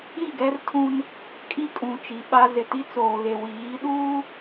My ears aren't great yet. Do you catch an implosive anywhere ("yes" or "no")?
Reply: yes